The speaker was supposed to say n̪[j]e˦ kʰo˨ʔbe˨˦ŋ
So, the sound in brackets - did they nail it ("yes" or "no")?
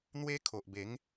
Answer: no